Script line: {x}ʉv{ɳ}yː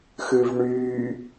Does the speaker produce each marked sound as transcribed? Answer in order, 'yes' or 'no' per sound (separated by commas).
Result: yes, yes